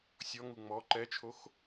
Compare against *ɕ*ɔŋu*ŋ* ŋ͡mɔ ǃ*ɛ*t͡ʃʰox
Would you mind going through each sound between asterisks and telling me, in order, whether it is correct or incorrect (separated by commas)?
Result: incorrect, incorrect, correct